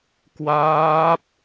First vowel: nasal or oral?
oral